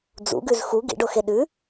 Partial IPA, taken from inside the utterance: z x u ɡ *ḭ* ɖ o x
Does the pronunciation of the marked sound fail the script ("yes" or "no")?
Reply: no